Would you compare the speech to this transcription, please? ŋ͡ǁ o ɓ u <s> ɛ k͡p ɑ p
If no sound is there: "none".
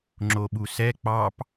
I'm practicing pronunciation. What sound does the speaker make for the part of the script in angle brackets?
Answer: s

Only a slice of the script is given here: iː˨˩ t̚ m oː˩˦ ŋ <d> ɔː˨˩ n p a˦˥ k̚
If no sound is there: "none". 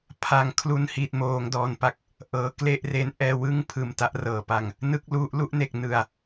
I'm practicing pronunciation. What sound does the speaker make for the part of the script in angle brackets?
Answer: d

